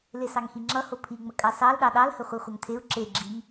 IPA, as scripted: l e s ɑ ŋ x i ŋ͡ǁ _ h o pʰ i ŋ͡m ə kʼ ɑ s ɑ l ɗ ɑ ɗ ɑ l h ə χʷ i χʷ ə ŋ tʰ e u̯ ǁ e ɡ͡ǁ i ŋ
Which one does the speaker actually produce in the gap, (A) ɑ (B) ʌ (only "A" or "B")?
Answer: B